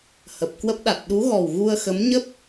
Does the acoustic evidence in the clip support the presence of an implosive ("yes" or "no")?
yes